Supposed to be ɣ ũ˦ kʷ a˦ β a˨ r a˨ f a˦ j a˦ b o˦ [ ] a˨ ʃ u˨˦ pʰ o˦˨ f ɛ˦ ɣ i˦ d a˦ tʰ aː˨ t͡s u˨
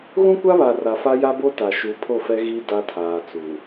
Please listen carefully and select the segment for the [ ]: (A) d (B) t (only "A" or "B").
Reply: B